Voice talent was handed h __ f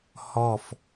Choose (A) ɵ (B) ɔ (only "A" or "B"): B